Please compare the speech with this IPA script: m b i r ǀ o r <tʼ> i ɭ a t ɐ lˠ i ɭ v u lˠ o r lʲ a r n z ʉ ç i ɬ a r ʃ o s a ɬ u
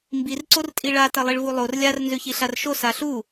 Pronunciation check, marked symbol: correct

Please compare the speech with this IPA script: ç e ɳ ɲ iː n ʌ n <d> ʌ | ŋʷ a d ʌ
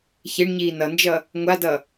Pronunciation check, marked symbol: incorrect: d͡ʒ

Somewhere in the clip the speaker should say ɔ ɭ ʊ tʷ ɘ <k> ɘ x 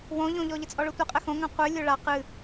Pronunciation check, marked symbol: incorrect: qʼ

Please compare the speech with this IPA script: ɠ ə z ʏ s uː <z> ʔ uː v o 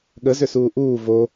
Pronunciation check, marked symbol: incorrect: none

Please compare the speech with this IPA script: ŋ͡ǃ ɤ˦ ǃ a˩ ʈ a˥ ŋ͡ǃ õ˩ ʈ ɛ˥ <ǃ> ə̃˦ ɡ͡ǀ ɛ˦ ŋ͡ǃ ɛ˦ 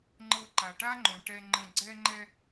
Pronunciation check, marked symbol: incorrect: ŋ͡ǃ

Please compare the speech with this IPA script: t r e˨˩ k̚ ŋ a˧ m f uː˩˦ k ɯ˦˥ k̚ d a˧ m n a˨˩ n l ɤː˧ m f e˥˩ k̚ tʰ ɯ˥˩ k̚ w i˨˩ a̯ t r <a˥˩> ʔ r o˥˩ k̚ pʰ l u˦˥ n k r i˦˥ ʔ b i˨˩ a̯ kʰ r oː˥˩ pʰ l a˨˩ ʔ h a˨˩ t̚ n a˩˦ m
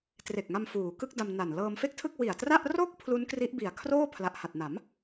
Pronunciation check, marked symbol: correct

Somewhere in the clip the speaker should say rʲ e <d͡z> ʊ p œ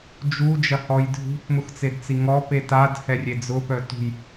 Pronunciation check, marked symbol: correct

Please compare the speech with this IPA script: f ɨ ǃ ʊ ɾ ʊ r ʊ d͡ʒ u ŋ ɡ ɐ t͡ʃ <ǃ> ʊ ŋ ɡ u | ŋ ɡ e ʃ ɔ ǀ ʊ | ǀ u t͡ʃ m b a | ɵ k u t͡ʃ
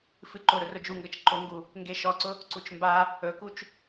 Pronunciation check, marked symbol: correct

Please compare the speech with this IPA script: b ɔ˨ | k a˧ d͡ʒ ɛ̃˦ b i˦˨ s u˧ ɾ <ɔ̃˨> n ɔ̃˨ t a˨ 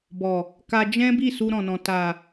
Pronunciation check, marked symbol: correct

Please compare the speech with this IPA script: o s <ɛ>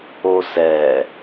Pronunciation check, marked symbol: correct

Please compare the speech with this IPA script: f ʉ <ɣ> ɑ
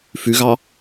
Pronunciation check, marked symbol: correct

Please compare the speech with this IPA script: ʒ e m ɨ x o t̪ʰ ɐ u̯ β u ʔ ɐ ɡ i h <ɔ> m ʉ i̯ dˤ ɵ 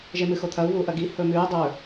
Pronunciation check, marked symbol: incorrect: ɵ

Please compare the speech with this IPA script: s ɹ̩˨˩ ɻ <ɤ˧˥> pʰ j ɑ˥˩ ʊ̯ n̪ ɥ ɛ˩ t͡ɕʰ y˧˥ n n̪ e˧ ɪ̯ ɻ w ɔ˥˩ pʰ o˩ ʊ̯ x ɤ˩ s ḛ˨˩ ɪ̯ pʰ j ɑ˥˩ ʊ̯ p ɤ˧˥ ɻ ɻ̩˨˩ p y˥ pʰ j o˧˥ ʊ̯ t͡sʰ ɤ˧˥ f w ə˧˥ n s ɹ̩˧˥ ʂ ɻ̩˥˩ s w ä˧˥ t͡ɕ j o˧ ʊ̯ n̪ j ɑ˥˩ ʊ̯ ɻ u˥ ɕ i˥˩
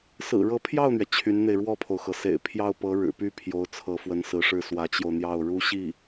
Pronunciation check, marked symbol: correct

